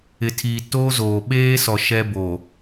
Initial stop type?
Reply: aspirated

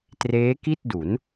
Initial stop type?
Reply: plain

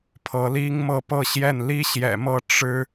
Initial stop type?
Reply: aspirated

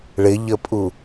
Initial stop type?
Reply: ejective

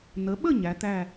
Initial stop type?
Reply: implosive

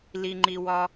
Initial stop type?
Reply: click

